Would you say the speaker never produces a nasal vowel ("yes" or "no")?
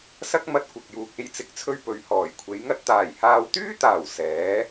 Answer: yes